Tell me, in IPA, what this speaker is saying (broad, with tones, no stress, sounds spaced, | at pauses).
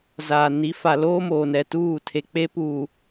z aː˨ n i˨˦ f a˨ l oː˦ m oː˨ n ɛ˨ t uː˦˨ tʰ e˨ k͡p e˦ p u˨